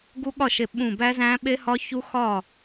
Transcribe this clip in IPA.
ɡ u˦˥ ɠ ɒ˥˩ ʃ e˧˩ ɓ ũ˧˩ b æ˦˥ z æ̃˦˥ ɓ e˦˥ h ɒ˦˥ ç u˦˥ x ɒ˥˩

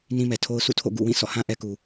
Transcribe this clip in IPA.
n ĩ˦ m ɛ˨ tʰ o˦ ʊ̯ s ṵ˦˨ tʰ o̰˦˨ ɡ ṵ˦˨ w ĩ˦˨ s ɔ̰˦˨ h ã˦ ʔ ɛ˦ k u˨

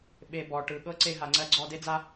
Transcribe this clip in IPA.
ɓ e˨ b ɔ˨ ʈ ɯ˨ ɠ ɤ˦ ǀ e˧ ɦ a˨ ŋ͡ǀ ɜ˧ ɡ͡ǀ ɔ˧ d e˦ d͡z a˦

